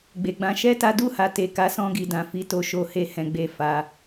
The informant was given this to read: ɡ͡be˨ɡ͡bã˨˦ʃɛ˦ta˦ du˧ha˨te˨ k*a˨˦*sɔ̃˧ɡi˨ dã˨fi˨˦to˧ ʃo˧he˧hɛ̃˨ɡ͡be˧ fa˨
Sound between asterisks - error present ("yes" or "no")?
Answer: no